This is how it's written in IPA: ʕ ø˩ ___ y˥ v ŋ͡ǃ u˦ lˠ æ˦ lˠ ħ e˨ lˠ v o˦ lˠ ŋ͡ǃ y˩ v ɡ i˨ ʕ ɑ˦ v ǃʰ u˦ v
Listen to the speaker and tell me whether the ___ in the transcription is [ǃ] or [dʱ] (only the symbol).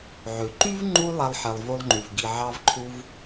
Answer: ǃ